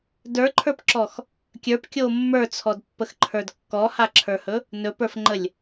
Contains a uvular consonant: no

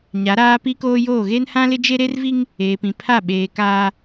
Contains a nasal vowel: yes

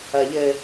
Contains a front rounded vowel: no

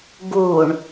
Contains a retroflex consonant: yes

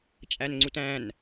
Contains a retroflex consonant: no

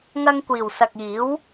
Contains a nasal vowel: no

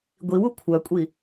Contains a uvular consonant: no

